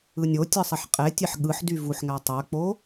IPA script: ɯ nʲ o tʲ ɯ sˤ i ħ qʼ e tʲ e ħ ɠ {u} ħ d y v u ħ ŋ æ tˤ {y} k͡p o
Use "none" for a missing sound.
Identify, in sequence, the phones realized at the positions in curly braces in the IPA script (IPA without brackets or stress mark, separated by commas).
ɯ, ø